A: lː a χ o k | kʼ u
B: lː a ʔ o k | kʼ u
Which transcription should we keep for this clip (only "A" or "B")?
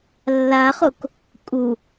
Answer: A